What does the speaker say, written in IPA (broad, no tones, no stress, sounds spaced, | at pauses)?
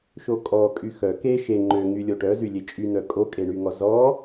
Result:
ʃ o kʼ ɔ kʼ y x œ k e ʃ e ŋ͡ǃ ø ŋ y lʲ o ʈ œ z y lʲ e t͡ʃʼ y n̪ œ kʼ o kʼ e ɳ y ŋ ɔ z ɔ